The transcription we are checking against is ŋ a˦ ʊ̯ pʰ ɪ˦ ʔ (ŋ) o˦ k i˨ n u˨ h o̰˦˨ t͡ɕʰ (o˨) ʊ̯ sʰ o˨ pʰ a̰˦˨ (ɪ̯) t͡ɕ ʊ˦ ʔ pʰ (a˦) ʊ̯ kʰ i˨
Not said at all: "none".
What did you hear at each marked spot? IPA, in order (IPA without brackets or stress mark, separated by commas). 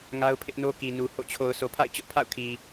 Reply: n, o˨, ɪ̯, a̰˦˨